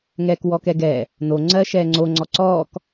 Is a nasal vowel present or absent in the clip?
absent